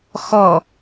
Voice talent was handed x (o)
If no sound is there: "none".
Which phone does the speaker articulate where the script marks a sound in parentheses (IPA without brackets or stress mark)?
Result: ɔ